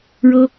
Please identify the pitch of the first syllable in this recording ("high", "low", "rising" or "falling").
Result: high